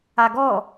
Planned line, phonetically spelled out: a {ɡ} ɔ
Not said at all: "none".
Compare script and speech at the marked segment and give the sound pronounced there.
ɡ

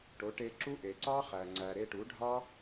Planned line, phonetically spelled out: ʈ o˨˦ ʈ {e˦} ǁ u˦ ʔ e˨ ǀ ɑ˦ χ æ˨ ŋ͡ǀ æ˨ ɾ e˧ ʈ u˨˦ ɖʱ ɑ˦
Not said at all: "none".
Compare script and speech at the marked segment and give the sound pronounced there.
e˧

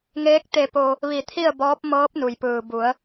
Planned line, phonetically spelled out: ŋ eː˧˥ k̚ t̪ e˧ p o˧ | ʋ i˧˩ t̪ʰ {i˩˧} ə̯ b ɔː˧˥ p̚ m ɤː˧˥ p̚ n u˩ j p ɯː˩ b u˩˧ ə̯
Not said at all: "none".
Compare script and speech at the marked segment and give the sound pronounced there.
i˥˨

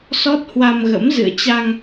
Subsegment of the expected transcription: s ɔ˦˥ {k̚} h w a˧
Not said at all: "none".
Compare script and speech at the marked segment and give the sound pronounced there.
t̚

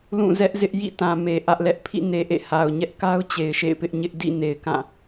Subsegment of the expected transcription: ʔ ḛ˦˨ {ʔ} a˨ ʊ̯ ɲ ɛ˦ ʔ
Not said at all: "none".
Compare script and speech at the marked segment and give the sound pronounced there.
h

